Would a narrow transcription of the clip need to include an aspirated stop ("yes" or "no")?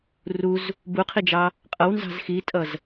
yes